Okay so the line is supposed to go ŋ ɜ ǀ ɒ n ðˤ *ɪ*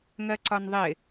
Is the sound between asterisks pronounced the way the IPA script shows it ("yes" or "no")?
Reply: yes